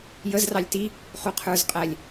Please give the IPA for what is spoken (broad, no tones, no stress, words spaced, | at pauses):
jəz rɑlʲti | χuqʰə˞z qʼælʲ